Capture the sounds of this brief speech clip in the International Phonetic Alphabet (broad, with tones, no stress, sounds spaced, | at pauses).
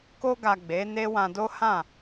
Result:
k o˧ ɡ a˨ ɡ͡b e˨˦ n e˦ w ã˧ d o˦ h ã˦˨